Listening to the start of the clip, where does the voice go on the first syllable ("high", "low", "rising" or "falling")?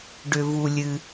low